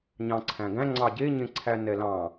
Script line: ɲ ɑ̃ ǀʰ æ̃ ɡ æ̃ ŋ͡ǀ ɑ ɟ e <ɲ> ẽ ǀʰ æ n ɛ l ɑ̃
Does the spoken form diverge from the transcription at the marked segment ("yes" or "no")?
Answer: no